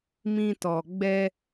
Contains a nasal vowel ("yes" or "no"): yes